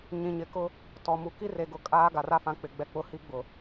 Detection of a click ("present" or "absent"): absent